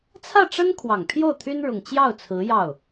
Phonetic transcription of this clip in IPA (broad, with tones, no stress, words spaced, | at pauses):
t͡sʰä˥˩ʈ͡ʂə˥n kʰwɑ˨˩ŋpʰjo˥˩ʊ̯t̪ʰy˥n ɻʊ˨˩ŋ t͡ɕjɑ˥˩ʊ̯t͡sʰɹ̩˧˥ jɑ˥˩ʊ̯